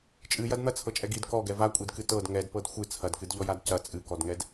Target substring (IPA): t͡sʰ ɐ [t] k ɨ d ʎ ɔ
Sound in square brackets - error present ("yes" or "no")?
yes